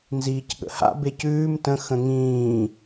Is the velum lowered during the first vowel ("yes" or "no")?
no